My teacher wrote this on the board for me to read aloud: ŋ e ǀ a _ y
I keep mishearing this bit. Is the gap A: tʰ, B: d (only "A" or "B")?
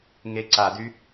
B